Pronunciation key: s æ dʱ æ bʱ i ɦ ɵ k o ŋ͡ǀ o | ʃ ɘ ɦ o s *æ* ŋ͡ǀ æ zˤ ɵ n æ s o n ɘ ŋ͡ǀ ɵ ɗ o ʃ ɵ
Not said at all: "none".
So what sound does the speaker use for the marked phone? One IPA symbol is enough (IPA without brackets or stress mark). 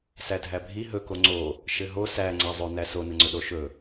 æ